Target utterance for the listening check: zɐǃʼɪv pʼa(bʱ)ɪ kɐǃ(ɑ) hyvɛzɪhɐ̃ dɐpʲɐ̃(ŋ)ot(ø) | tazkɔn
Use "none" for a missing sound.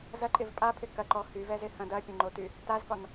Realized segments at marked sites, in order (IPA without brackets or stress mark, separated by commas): pʰ, ɔ, ŋ͡ǃ, y